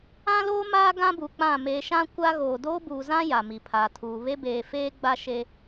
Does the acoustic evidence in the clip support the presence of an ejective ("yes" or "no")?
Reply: no